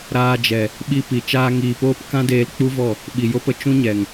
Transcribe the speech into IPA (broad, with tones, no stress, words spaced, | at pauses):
ɾaː˧d͡ʒɛ˨ | ɓi˧ pi˨ t͡ʃaː˧ŋiː˨poː˦p kã˦deː˧lk͡pu˦vɔ˦˨ | ɓi˨jo˦pə˦ t͡ʃũ˦ɲɛ˨ŋ